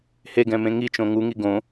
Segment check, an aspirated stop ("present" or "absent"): absent